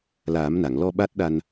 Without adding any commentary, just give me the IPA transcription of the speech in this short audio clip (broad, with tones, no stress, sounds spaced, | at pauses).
l aː˨˩˦ m n a˨˩˨ ŋ l ɔ˧ ɓ a˦˥ t̚ ɗ a˧ n